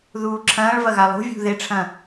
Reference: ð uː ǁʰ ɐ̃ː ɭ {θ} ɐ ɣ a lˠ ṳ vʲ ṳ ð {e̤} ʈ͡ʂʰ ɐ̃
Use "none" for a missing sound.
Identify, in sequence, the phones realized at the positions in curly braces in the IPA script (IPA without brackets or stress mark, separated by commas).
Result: v, e